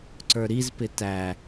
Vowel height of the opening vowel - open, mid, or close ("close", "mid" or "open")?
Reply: mid